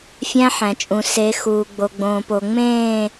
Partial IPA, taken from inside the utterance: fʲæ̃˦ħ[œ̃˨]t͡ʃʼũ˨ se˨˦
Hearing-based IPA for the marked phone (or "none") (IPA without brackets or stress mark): æ̃˨